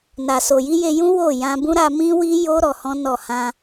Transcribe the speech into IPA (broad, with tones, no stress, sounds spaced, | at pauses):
n a˨ s o˨ j i˧ j e˧ j ũ˦ w o˦˨ j ã˧ b ũ˦ ɾ a˧ m ĩ˦ w i˦ j o˦ ɾ ɔ˧ h ɔ̃˦ n ɔ˦˨ h ã˧